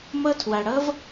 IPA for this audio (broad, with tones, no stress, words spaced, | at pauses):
mʌ˦tʰwa˧ɽʌ˦v